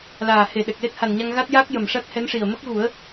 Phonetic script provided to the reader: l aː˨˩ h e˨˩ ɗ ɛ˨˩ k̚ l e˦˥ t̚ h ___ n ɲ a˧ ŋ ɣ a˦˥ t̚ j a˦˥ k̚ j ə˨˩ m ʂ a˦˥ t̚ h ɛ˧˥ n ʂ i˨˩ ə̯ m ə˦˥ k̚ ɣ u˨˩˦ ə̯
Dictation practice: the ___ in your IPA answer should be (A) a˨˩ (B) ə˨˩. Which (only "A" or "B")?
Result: A